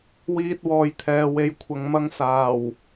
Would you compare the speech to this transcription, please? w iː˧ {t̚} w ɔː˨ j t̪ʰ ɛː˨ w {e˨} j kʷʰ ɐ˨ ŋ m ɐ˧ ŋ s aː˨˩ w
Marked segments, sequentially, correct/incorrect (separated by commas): correct, correct